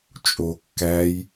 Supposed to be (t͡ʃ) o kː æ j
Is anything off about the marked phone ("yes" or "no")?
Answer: yes